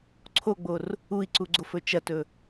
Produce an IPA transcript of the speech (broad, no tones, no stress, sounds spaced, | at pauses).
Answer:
ǀʰ o ɡ͡b o r | u i̯ ǀ u ɡ͡ǀ o f ɵ t͡ʃ ɐ t ɵ